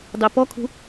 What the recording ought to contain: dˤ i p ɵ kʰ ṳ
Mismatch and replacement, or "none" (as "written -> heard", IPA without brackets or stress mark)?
ɵ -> ɔ